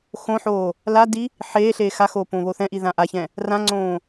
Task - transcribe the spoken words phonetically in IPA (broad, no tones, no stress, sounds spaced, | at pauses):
x õ ħ oː | l a d i | ħ eː ɬ eː x a x oː p õː β o θ ɛ̃ ʔ i ð ã ʔ a ç ɛ̃ | r ã ŋ͡ǀ õː